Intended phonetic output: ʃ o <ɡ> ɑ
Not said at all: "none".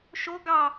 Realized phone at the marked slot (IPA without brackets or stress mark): ɡ